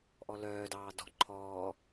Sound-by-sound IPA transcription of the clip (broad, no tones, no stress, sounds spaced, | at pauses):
ʔ ɔ l œː d ɑː d ɔ̤ ǃʰ ɔː